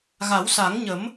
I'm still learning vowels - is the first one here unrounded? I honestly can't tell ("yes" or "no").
yes